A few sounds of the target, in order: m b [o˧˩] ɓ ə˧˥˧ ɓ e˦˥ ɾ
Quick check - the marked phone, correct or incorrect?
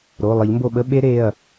correct